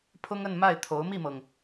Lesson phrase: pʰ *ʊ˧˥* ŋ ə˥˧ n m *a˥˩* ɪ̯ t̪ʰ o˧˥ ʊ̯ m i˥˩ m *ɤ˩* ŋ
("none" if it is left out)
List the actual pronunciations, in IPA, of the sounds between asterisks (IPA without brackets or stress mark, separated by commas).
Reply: ʊ˥, a˥˩, ɤ˩